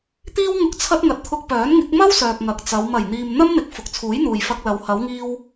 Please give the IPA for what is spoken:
t̪iː˥wŋʊ˧k̚ t͡sʰɐ˧t̚ ŋɐ˨t̚t̪ʰʊ˧k̚pœː˨˥nŋɪ˨˥k̚ mɐ˥w sœː˨k̚ŋɐ˨k̚t͡sɐ˨˧w mɐ˨˩jn̪iː˨m n̪ɐ˥mn̪ɪ˨˥k̚ fʊ˨k̚t͡sʰuː˨˥jn̪uː˨j fɐ˧k̚lɐ˨˧w hɐ˨˧wŋiː˧w

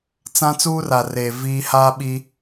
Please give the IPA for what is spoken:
t͡sã˦ t͡suː˦ra˨reː˨ viː˦ haː˦ɓi˦

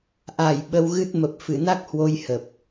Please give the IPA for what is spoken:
ʔa˧˩j ɓə˧wɣɨ˦˥t̚ mə˨˩p̚fɨ˧˩na˦˥k̚hwo˧j hə˨˩p̚

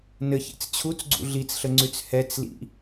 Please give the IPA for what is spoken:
nɘçḛt͡s t͡ɕʰut͡sɡ͡ǀṵ ɮit͡sɬəŋ͡ǀʉt͡s hɛt͡slḭ

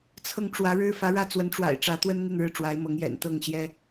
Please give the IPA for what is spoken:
t͡sʰɤ˥˩ŋ ʈ͡ʂwä˧˥ɻɻ̩˥ fä˧˥ɻä˥ t͡swə˧˥nʈ͡ʂwa̰˨˩ɪ̯ ʈ͡ʂä˧˥t̪wə˥n n̪i˥˧nɻɻ̩˥˩ʈ͡ʂwa˧˥ɪ̯mɤ˧˥ŋ jɛ̰˨˩nt̪ɤ˥˩ŋɕjɛ˥

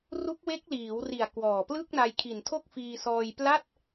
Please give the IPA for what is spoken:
ru˦˥k̚we˦˥k̚liː˩˦wri˨˩a̯ kwɔː˨˩plɯ˥˩k̚ na˧jkʰi˨˩n tʰo˥˩k̚fiː˧sɔː˧j pla˥˩t̚

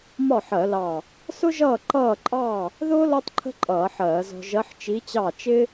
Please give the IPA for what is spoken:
mɒ˥˩ħɜ˧˩˧lɑ˧˩ | sʊ˥ʒʌː˥˩ ǃʌː˥˩ǃʼɑ˥˩ | ðʊː˥ lɔ˥tˤǃʰə̤˥ǃʼʌː˧˩˧ ħɜː˧˩˧zɔ̤˧ ʒɜ˧˥ħt͡ʃi˧˥t͡ɕɑ˥˩ t͡ʃɪ˥

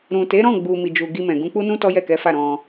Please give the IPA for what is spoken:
ɾũ˨te˨˦ɾɔ̃˦˨ɡ͡bu˨ mi˨d͡ʒu˨ ɡi˧mɛ̃˨ ɡũ˧k͡pu˦nũ˦ tɔ˦jɛ˦˨kɛ˨˦fa˦˨ ɾɔ̃˧

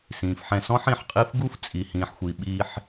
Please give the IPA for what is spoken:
sĩː˨fħɛ̃˧sɔ̃˦ħ ĩ˨ħqʼi˦f ɡu˦ft͡sʼi˨hĩː˨ħxʷi˨ ɓiː˧ħ

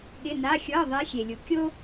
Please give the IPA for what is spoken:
ɠɪ˧˥˧na˧˥˧ xʲɤ˧˥˧ ðˤe˧˥xʲe˨lʲu˨ kʲo˥

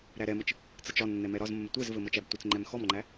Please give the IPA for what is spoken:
ɾæɾɛmət͡ʃ | t͡sət͡ʃɒnːɛ mɛɾɒzmːə tʷɛzvɘ mɤt͡ʃæbtʷɘt͡sŋ͡ǃɛm xɔmŋ͡ǃæ

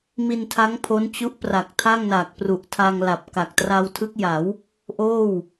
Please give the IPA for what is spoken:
mi˧ntʰa˦˥ŋ pʰo˦˥nt͡ɕu˦˥ʔpra˨˩k̚ tʰa˥˩ŋna˨˩k̚pru˨˩ʔtʰa˧ŋ la˨˩p̚ka˨˩k̚ tra˧wtʰɯ˦˥k̚ja˩˦w | ʔoː˥˩w

